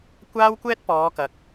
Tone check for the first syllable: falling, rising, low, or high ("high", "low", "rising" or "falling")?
high